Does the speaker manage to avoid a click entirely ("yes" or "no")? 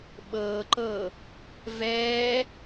no